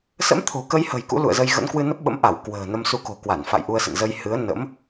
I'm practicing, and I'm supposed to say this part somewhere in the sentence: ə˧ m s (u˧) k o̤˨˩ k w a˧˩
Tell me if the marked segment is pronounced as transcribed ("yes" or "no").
yes